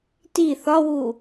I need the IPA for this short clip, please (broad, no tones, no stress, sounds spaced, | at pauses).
t i θ ɒ w u